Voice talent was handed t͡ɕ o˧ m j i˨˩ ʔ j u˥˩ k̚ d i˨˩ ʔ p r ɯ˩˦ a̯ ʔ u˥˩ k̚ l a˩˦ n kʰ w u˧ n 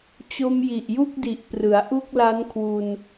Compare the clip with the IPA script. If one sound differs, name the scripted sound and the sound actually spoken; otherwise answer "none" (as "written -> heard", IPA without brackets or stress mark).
a˩˦ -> a˦˥